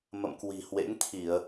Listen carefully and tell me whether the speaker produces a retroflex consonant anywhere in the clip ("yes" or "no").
no